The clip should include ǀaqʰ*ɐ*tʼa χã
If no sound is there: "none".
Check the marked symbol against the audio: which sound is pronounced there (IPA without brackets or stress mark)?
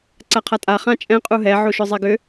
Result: a